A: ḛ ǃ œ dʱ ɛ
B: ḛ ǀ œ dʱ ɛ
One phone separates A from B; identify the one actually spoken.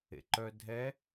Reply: A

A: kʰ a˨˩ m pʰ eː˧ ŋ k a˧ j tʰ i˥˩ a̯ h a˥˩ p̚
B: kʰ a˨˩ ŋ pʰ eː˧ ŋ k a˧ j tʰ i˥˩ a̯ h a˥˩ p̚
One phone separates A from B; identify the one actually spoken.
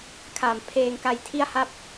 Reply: A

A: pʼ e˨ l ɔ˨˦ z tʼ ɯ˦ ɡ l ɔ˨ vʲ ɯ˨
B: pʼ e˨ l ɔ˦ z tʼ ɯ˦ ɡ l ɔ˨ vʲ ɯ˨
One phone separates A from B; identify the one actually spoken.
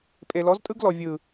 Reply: A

